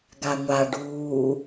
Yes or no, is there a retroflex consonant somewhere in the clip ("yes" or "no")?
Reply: yes